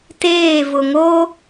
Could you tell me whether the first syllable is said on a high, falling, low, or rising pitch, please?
falling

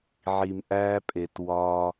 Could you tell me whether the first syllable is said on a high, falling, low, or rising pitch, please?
low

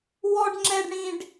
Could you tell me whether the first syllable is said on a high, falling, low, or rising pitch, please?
high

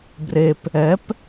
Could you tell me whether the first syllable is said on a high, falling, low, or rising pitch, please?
low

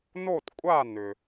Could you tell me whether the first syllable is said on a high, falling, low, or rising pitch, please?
falling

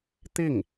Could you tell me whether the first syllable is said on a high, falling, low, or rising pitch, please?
falling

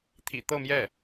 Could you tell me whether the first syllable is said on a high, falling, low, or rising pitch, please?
low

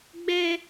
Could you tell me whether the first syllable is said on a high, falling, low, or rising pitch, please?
high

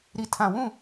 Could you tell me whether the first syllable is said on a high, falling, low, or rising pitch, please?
low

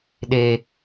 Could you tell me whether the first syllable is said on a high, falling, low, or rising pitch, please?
high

